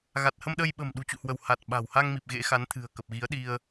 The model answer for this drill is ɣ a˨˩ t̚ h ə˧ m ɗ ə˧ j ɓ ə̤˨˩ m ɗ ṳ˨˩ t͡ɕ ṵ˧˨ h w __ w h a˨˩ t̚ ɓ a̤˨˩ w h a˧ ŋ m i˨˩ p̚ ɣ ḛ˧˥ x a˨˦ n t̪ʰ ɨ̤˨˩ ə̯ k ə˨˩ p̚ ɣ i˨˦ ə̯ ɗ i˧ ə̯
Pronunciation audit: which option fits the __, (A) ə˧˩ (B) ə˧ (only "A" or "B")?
A